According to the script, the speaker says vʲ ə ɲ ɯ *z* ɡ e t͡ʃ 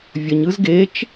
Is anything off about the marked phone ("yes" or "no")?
no